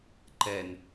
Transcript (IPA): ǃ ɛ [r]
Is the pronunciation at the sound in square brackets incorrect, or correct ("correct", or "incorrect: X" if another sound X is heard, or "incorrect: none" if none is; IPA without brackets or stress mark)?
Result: incorrect: n